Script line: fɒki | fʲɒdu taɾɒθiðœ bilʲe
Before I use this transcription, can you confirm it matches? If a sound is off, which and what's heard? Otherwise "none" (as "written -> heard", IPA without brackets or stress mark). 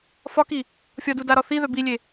t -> d